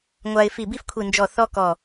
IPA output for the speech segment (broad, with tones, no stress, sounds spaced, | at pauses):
ŋʷ a˧ ɪ̯ f i˧˩ b i˥ f kʷʰ i˧˩ n d͡ʒ ɔ˧˩ θ ɔ˥ k ɔ˧˩